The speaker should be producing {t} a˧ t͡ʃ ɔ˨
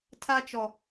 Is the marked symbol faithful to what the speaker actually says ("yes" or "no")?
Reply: no